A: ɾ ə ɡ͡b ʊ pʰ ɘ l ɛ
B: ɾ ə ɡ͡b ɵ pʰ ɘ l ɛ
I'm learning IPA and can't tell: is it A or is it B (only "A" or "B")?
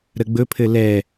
B